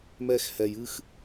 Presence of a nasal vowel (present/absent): absent